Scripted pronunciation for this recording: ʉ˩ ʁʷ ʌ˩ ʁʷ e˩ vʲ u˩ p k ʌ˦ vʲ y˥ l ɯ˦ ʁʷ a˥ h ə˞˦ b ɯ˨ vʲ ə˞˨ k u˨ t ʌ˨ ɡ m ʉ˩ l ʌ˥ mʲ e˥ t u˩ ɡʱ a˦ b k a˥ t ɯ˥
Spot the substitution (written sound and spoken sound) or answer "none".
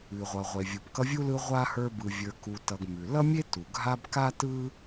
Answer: y˥ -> u˥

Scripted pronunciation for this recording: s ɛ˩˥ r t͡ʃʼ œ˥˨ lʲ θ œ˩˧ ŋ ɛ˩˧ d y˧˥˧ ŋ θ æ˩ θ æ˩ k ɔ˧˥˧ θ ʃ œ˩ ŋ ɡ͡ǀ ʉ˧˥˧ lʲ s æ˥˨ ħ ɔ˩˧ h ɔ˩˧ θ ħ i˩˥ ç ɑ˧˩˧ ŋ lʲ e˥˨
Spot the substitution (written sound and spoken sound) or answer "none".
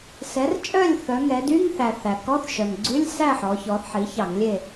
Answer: h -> ç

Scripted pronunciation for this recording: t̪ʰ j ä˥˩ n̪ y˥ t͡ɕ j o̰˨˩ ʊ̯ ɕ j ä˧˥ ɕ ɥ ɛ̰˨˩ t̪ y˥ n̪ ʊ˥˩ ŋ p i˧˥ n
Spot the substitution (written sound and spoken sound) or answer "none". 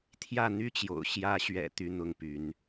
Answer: i˧˥ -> y˧˥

